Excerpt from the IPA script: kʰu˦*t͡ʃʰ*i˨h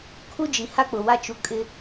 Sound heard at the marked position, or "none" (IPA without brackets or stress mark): d͡ʒ